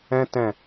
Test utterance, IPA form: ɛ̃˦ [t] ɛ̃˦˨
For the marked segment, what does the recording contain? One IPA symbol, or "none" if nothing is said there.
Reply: t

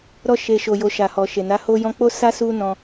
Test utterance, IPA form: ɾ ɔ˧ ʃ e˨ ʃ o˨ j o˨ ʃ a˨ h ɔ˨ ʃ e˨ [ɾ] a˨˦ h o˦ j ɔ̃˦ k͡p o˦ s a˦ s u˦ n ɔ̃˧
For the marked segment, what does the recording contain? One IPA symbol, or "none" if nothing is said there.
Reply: n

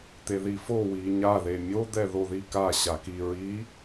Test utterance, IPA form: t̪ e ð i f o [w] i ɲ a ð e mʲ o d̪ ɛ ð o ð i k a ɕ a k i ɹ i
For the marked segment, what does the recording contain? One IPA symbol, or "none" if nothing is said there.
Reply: w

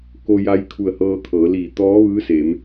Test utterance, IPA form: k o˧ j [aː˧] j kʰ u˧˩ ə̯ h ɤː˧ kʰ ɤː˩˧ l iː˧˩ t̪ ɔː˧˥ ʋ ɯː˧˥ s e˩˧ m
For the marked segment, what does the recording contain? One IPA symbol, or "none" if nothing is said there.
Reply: a˧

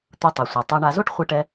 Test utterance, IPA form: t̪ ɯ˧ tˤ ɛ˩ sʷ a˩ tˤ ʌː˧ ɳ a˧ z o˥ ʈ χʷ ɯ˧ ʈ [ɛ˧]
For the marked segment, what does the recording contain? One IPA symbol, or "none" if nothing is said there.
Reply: ɛ˧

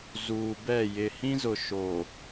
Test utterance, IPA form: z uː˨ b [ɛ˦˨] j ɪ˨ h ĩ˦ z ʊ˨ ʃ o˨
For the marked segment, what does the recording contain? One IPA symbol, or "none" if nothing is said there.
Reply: ɛ˦˨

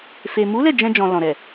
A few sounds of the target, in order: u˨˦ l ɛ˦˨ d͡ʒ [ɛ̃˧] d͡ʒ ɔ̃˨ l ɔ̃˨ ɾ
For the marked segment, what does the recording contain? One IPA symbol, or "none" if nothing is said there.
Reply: ɛ̃˧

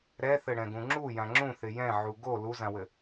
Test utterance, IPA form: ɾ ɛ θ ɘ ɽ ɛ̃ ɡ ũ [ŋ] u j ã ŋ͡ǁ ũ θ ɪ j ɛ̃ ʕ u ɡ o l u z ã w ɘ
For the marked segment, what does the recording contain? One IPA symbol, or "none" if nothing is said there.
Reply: ŋ͡ǁ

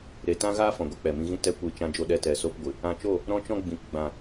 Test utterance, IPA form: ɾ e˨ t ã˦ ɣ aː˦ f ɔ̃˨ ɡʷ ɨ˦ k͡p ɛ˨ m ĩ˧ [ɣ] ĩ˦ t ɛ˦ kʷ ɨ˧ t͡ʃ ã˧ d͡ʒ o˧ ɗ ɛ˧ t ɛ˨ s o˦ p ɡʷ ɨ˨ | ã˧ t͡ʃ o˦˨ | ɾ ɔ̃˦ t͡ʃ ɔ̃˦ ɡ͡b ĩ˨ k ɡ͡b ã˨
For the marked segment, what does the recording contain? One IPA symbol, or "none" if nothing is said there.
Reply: ɣ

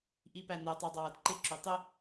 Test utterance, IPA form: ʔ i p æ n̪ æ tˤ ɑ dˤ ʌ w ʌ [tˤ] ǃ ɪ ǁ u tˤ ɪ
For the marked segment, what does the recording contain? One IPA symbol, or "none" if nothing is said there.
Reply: d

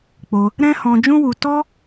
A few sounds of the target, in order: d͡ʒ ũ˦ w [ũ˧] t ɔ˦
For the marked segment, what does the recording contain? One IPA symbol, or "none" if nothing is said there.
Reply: u˧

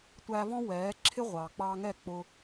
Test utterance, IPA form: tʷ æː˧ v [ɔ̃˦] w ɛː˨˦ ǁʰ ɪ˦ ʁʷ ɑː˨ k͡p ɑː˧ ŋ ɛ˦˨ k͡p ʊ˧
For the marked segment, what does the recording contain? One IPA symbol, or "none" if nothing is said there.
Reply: ɔ̃˦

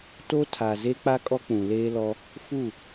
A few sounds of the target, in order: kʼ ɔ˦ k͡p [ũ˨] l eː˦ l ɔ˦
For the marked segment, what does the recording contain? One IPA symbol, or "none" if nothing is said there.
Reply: ũ˨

